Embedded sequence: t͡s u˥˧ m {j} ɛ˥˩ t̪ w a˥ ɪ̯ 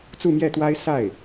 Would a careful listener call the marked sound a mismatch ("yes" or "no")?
no